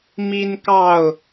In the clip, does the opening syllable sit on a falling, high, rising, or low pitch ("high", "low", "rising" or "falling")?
high